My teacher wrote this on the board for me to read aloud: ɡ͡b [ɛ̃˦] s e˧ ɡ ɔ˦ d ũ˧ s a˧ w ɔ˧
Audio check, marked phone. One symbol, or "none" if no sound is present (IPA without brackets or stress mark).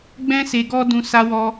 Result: ɛ̃˦